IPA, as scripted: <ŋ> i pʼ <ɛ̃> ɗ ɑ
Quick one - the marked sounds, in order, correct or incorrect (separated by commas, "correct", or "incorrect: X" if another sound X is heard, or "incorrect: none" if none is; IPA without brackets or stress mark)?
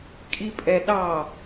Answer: incorrect: kʼ, incorrect: ɛ